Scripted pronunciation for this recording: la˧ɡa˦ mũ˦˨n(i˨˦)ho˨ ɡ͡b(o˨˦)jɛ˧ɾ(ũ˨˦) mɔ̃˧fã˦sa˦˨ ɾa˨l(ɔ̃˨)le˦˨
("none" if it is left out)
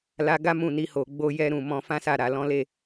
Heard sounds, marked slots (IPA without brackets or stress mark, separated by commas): i˧, o˧, ũ˨, ɔ̃˨˦